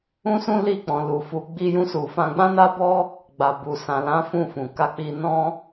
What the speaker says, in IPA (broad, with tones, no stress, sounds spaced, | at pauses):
ũ˦ s ũ˦ l i˦˨ k͡p ɔ̃˨ l u˨ f u˨˦ ɡ͡b i˦ j ũ˦ s u˧ f ã˧ ɡ͡b ã˦ n a˦ b ɔ˦ | ɡ͡b a˨ b u˨ s ã˨ l ã˨˦ f ũ˦˨ f ũ˨ k a˧ k͡p i˧ n ɔ̃˦